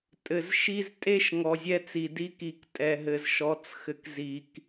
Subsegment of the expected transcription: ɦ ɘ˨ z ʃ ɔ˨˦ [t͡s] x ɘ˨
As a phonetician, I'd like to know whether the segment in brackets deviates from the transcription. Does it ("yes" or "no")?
no